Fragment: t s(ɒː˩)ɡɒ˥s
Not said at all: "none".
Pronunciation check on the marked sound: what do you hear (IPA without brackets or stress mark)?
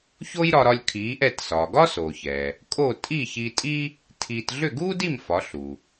ɒː˩